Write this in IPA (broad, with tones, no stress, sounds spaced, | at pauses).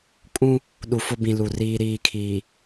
kʼ ũ˦ | ɗ u˨ f ʊ˦ b ĩ˨ l u˨ r iː˦ ɾ iː˦˨ kʰ iː˨